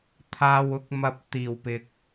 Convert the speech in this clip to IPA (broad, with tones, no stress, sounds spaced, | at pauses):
t̪ʰ aː˨ w ʊ˨˥ k̚ m ɐ˨ p̚ t̪ iː˨˩ w p ɪ˨ k̚